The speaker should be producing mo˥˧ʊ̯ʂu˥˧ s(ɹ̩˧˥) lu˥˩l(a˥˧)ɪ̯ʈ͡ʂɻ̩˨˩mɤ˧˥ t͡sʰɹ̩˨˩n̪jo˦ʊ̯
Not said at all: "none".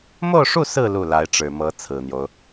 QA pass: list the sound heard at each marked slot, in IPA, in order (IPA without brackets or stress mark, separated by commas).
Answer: ɹ̩˥˧, a˧˥